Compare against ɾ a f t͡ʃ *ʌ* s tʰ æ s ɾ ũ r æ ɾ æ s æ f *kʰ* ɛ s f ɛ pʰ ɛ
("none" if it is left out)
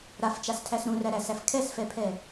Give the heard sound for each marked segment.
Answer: a, kʰ

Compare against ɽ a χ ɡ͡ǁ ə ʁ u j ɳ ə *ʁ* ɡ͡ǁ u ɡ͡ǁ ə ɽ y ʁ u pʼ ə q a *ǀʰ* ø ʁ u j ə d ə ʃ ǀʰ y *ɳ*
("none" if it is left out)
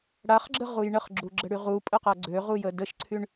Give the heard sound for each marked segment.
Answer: χ, ɡ͡ǀ, ɳ

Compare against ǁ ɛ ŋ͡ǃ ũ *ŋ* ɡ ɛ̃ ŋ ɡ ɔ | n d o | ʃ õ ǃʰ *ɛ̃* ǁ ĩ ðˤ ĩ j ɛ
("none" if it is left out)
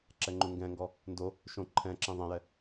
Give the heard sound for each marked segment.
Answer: ŋ, ɛ̃

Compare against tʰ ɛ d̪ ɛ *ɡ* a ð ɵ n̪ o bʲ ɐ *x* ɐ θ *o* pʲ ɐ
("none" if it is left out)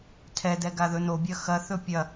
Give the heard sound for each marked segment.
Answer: ɡ, x, ɵ

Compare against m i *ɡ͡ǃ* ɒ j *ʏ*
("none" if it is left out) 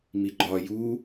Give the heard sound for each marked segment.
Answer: ɡ͡ǃ, u

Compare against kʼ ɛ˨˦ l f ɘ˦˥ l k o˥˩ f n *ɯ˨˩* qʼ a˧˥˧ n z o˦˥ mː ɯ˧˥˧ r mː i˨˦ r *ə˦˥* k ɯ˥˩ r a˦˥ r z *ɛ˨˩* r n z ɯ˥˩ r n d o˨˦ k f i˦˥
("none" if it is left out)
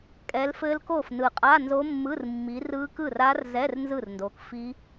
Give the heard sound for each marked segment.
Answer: ɯ˨˩, ɯ˦˥, ɛ˧˥˧

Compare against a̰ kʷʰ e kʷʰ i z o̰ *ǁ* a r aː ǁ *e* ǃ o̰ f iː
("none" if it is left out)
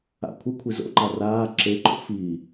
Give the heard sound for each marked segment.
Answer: ǃ, e

